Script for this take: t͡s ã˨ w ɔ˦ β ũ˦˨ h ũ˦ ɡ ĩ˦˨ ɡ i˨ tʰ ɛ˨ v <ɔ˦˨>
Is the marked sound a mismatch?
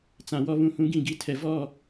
no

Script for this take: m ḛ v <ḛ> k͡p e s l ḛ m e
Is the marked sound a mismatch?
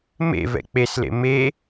yes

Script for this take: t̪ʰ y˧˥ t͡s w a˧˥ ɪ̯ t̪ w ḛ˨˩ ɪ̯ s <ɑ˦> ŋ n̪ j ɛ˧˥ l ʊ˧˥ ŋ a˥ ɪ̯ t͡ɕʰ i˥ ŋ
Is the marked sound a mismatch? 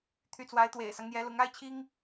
no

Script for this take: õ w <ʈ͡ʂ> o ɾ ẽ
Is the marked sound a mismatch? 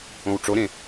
no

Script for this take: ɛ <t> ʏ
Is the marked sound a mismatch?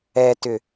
no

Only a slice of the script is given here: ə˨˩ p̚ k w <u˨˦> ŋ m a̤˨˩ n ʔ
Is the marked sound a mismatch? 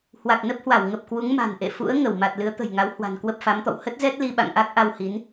no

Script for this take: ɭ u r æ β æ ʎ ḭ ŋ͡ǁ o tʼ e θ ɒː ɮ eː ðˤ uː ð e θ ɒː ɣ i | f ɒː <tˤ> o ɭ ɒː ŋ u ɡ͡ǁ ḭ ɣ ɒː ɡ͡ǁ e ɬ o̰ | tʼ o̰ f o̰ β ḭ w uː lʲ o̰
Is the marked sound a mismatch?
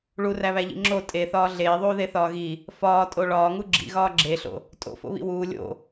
yes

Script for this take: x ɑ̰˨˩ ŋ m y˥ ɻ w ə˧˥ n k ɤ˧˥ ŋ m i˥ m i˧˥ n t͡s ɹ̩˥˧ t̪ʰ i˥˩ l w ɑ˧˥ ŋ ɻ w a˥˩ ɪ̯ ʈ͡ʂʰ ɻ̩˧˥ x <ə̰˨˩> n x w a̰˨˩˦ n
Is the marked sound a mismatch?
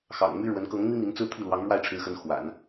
yes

